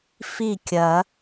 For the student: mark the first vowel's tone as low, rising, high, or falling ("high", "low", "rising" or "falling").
falling